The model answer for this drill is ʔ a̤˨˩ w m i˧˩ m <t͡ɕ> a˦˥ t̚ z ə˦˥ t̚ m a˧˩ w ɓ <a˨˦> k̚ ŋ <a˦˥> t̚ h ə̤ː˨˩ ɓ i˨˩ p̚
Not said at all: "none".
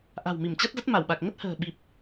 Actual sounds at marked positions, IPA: t͡ɕ, a˨˩, ə˦˥

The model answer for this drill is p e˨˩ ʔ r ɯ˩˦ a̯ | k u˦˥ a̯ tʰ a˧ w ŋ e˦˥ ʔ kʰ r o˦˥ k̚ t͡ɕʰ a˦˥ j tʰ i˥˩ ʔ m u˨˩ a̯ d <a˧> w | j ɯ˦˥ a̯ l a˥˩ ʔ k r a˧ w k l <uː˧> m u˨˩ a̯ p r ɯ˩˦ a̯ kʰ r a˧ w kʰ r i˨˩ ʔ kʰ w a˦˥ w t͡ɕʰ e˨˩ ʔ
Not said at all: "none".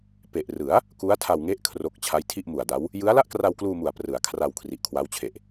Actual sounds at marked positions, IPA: a˦˥, uː˧

